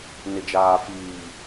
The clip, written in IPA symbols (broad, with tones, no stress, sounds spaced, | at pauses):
n ɪ˨ d͡ʒ aː˨ f iː˨